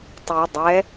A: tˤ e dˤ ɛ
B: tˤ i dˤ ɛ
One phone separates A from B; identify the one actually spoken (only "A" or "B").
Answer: B